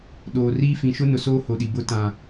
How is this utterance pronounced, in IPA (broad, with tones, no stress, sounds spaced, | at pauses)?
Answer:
ɗ oː˨ r iː˦ f ĩ˨ ʃ ʊ˦ n ʊ˨ s oː˦ h o˨ ɗ i˨ b ʊ˦ t ã˨